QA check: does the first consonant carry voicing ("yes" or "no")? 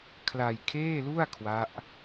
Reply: no